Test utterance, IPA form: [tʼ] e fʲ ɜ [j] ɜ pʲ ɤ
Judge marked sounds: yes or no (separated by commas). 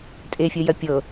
yes, yes